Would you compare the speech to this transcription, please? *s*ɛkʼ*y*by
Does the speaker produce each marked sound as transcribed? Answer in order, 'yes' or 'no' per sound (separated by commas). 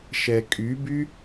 no, yes